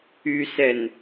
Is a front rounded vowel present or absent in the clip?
present